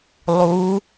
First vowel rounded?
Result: yes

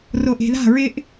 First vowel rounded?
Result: yes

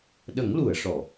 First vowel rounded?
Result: no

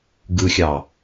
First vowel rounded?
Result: no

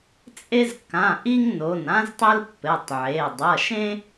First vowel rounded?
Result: no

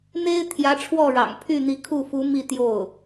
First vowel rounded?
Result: no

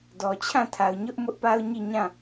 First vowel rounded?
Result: yes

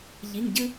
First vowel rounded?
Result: no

